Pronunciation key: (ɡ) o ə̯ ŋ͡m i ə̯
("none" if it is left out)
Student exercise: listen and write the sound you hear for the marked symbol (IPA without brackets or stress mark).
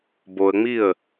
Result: b